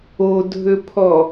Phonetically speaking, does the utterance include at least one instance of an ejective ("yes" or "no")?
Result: no